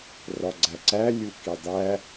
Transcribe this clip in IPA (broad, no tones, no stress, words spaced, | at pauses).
rɒɡ͡ǀæǀæ lʲukidˤæ